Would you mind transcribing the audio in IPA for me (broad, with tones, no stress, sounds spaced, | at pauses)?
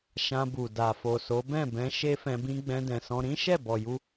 ʃ ã˧ b u˨ d a˨ f o˨ s o˨˦ b ɛ̃˦˨ b ɛ̃˧ ʃ e˦ f ɛ̃˧ b ĩ˦ ɡ͡b ɛ̃˧ d ɛ̃˨ s ɔ̃˧ ɾ ĩ˦ ʃ ɛ˦˨ b ɔ˨ j u˧